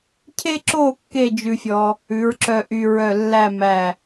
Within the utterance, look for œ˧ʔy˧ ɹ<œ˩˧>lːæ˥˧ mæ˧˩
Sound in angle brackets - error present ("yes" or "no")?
yes